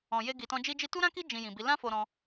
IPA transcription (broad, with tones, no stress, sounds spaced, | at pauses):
ɔ̃˨ j e˧ ɡ i˨ t ɔ̃˧ d͡ʒ i˦ d͡ʒ i˦ t u˦ ɾ ã˦ k i˦ d͡ʒ ĩ˧ j ĩ˨ b i˨˦ l ã˦ f o˧ ɾ ɔ̃˧